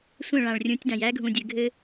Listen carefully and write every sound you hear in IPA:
sʷ ə̃˦˨ ɭ ã˨ ɭ rʲ ũ˨˦ tʲ d ã˨ j æ˦ ɡʱ ũ˨ dʲ ɘ˨ ɡʱ ɘ˦

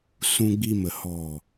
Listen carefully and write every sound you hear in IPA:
s ũ˧ ɡ͡b i˧ m ə˨ h ɔ˨

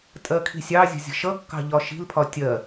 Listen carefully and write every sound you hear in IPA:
tʼ ɜ kʰ i̤ sʲ ɑ zʲ ə̤ zʲ ə̤ ʃ ʌ kː ɑ̤ ʎ ɒ ʃ i̤ l pʰ ɒ tʲ ɜ

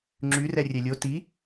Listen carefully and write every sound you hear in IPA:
ŋ͡ǁ y r ɛ rʲ ɛ lʲ o t i

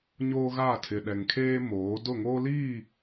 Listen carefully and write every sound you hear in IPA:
ɲ oː˦ ɣ a˦˨ tʰ ɪ˨ ɗ ɛ˨ ŋ kʰ eː˦ m oː˨˦ d ʊ˦˨ ŋ oː˦ l iː˦˨

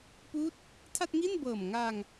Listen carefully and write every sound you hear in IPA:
p uː˦˥ t̚ | tʰ a˥˩ t̚ ŋ i˥˩ n b ɤː˨˩ m ŋ aː˧ ŋ

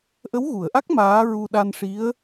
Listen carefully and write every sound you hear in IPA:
ʔ ə˧˥ w ɣ u˨˩˨ ə̯ ʔ a˦˥ k̚ m aː˧˥ ɹ u˧ ɗ a˧ n ʂ i˧˥ ə̯

